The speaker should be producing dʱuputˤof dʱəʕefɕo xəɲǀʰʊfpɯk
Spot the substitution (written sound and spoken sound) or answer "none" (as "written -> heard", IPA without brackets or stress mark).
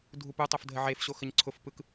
none